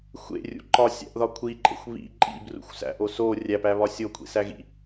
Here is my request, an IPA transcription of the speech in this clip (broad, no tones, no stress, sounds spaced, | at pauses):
xʷ ḛ rʲ ṵ ǃ ɒ sʲ æ̰ ʔ ð ɒ kʷʰ i ǃʼ ḛ xʷ β ḭ ǃʼ ḭ b r ṵ xʷ s æ̰ ʔ o s o rʲ æ p æ β ɒ sʲ o kʷʰ ḭ s æ ɣ ḭ